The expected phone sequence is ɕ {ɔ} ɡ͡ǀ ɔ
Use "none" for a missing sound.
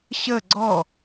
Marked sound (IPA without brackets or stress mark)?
ə